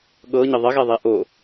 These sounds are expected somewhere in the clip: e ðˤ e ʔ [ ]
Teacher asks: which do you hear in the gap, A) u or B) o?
B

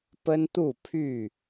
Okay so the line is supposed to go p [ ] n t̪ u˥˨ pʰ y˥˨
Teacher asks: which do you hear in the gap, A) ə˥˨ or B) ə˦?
B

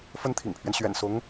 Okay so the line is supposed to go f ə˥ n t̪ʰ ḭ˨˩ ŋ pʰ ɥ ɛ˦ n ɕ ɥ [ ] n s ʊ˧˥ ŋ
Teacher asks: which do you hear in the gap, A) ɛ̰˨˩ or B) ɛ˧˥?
A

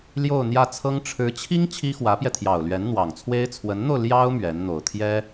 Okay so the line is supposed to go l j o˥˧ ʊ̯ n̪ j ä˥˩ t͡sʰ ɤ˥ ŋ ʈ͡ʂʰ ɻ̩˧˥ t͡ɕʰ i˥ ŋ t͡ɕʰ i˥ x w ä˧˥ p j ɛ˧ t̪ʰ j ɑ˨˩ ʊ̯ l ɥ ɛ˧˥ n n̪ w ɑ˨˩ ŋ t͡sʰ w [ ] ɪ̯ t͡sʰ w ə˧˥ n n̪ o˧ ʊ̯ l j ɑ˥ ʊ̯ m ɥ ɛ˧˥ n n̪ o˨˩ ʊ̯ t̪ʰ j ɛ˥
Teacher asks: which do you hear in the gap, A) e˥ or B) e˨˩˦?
A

